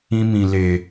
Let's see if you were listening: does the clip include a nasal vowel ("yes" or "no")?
yes